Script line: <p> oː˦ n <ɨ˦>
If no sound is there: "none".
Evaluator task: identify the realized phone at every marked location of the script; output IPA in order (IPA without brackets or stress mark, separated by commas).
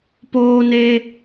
p, e˦